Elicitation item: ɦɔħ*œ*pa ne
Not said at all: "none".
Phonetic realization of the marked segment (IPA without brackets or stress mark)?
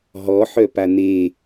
œ